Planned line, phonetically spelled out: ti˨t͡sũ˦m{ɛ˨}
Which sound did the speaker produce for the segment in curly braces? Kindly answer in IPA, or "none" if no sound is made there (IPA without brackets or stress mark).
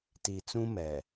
ɛ˨